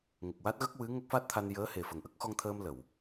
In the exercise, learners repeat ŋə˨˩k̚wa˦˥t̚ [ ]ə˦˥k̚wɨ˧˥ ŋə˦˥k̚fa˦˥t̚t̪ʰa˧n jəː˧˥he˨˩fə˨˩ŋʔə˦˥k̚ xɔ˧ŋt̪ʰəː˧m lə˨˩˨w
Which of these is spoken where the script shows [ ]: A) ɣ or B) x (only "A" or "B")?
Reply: A